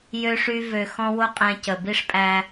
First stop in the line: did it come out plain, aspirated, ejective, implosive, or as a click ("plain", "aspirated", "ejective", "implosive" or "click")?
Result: ejective